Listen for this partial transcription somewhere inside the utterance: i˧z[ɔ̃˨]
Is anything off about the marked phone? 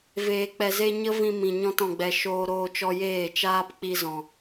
no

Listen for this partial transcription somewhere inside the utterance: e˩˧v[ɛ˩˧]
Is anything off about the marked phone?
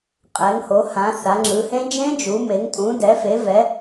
no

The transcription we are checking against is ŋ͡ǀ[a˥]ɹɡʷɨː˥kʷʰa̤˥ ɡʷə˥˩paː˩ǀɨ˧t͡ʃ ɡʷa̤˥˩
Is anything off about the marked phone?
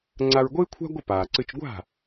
yes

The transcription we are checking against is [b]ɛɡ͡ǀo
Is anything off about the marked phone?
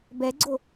no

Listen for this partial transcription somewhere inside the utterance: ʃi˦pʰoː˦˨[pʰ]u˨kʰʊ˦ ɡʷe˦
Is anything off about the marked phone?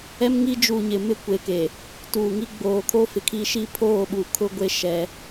yes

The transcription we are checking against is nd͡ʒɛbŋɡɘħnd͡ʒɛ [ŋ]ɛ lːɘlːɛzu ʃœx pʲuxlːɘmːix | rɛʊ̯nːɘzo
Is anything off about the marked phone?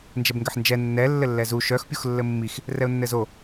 yes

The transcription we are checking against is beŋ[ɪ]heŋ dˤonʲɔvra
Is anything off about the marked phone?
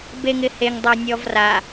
no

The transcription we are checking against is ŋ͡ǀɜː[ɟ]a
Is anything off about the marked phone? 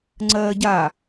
no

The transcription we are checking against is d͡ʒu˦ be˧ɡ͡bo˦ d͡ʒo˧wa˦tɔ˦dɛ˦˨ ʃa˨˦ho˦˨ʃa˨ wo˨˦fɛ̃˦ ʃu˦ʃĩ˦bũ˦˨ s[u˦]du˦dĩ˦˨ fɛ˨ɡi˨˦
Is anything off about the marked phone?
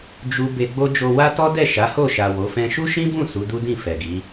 yes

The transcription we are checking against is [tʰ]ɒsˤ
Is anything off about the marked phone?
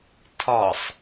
no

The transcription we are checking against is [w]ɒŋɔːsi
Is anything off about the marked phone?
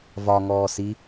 yes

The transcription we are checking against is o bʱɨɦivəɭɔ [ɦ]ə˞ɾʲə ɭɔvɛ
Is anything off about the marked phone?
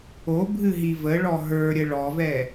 no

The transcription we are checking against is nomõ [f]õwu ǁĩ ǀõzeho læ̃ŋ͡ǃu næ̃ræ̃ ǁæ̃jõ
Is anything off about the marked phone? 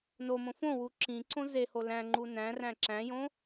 no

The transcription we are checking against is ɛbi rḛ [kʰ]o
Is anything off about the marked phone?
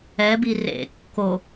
yes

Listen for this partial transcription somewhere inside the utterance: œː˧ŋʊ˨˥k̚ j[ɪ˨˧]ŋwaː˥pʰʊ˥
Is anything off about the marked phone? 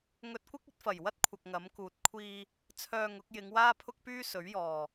no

